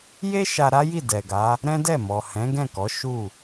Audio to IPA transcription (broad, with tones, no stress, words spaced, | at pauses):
je˦ ʃa˧ɾa˦ji˦˨ dɛ˨ɡa˨˦ | ɾɛ̃˦dɛ˦˨mɔ˨ hɛ̃˨˦ɡɛ̃˦˨kɔ˨˦ ʃu˦˨